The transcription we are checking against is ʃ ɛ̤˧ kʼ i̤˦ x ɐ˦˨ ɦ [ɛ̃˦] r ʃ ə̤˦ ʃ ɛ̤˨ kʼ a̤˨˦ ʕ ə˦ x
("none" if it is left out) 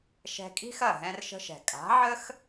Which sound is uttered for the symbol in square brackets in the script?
ɛ̃˦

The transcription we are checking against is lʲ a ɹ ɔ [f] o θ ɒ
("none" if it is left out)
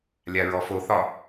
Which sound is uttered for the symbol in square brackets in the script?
f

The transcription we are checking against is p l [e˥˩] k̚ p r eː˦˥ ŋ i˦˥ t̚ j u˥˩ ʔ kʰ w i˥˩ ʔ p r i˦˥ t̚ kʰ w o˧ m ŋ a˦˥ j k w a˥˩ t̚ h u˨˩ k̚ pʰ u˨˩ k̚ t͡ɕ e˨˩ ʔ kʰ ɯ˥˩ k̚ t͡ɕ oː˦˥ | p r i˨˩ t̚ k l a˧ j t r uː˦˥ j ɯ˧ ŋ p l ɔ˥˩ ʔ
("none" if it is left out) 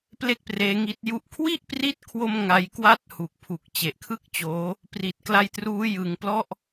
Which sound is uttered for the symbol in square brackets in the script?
e˥˩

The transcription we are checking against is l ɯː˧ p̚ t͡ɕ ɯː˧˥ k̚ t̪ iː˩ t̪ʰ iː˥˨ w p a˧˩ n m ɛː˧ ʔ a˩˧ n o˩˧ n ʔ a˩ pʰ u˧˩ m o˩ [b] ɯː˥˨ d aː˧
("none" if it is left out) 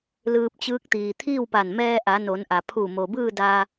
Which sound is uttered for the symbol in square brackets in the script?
b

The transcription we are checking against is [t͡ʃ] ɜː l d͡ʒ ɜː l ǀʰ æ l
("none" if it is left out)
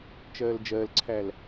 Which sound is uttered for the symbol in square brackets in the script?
t͡ʃ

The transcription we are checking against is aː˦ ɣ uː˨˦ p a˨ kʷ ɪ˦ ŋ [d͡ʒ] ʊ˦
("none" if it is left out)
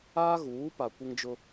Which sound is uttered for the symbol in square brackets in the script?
d͡ʒ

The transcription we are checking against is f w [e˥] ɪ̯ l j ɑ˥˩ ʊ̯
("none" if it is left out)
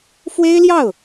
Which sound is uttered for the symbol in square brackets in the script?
e˥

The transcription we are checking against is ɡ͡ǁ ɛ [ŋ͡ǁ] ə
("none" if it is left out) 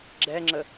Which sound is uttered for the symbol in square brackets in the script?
ŋ͡ǁ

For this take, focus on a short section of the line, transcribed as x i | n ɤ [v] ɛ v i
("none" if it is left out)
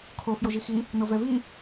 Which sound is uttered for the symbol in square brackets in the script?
v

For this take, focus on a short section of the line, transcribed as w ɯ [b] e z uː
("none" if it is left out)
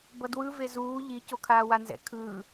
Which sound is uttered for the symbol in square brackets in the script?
v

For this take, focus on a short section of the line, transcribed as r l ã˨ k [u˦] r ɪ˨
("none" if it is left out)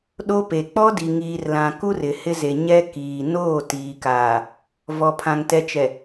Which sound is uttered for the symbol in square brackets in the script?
u˦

